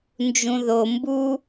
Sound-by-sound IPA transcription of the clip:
n d͡ʒ ũ ð o m b u

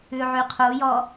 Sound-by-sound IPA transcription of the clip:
ʉ ʕ y qʰ u j ɔ

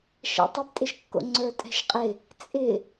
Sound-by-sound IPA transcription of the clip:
ʃ ɛ̰ tˤ ɪ p tʼ ɪ ʃ kː o̰ ŋ͡ǀ ə˞ tʼ ɛ̤ ʃ qʼ ɪ | t͡sʼ ɪ

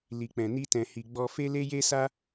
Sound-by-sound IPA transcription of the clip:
l i˨ k͡p ɛ̃˨ n i˧ t ɛ̃˨ h i˨ ɡ͡b ɔ˧ f e˦ l e˦ j e˦ s a˦

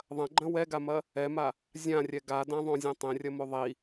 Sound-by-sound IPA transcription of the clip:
ðˤ ɐ̃ ɡ͡ǃ ɐ̃ w ɛ ɡ a m ɐ | ɛ m a | zʲ ã rʲ ɛ ɡ a d ã ðˤ õ zʲ ɐ̃ tˤ ẽ rʲ ɐ m o ðˤ i

